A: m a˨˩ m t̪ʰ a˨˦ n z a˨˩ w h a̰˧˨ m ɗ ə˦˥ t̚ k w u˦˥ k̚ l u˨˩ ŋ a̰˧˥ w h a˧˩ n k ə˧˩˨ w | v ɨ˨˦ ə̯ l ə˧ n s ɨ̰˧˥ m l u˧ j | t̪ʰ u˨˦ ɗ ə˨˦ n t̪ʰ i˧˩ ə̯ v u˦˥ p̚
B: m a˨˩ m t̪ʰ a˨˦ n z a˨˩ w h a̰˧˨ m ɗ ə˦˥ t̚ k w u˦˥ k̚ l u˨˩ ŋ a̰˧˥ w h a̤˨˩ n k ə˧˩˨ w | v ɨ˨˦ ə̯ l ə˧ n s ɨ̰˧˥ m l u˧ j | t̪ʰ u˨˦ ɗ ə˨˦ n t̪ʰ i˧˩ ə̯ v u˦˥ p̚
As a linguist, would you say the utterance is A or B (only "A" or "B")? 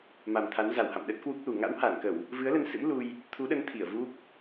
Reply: A